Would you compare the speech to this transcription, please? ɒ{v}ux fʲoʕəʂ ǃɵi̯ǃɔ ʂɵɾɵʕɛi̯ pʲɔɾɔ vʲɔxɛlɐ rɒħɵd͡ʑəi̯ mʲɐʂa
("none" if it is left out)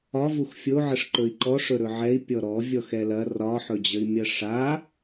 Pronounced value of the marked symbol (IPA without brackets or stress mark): v